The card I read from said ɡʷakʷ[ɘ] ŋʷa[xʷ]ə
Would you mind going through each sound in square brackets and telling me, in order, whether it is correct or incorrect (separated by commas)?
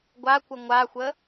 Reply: correct, correct